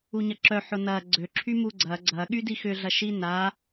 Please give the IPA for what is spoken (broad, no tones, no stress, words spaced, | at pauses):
uɲɐǁœ ħʊnɐ ɡ͡ǀø ǁʰymuɡ͡ǀɐ ɡ͡ǀɐ ɠydixʏ ɮɐʃina